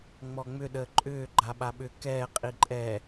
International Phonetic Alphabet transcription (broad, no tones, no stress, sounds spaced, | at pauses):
ŋ͡m ɔ ŋ͡m ʏ ɗ əː ǃʼ ʏː ɡ͡ǃ a ɓ a ɓ ʏ k ɛː qʼ i ǃʼ ɛ